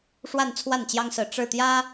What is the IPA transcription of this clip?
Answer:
ʂ w a˥˧ n t͡sʰ w a˥˩ n t͡ɕ j ɑ˥ ŋ s ɹ̩˥˧ ʈ͡ʂ ɻ̩˥˩ t̪ j ä˥

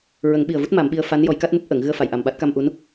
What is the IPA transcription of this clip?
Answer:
ɹ ə˨˩˦ ŋ ɓ i˨˩ ə̯ v u˦˥ t̚ m a˨˩˦ m ɓ i˧ ə̯ f a˧˥ n j ɔ˨˩˦ j k a˦˥ t̚ m u˦˥ p̚ ʔ ə˨˩˨ ŋ ɣ ɨ˧ ə̯ f a˨˩˨ j ʔ a˨˩ m ɓ a˦˥ t̚ k a˧ m ʔ u˧˥ n

